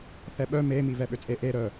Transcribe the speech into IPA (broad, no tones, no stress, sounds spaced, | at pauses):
θ ɛ ɓ œ m e m i v ɛ ɓ ø t͡sʼ e ʔ e ɾ œ